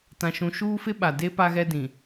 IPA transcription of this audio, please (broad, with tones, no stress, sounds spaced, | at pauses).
t ã˨ ʃ ũ˨ ʃ uː˦ f ɪ˦ ɓ a˨ d e˦ p a˦ ɣ ɛ˦ d ĩ˨